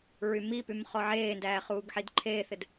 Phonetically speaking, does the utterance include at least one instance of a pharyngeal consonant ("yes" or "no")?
yes